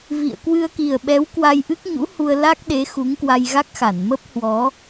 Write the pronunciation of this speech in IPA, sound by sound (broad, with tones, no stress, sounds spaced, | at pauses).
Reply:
v ḭ˧˨ ə̯ k w ɨ˧ ə̯ k i˨˩ ə̯ ɓ ɛ˨˦ w k w a˧ j ʔ ɨ˦˥ k̚ ɲ ṵ˧˥ h u˧ ə̯ l a˦˥ k̚ ɗ e˨˦ x u˨˦ ŋ k w a˧ j ɣ a˦˥ k̚ x a˧˩ n m ə˦˥ p̚ h w ɔ˨˦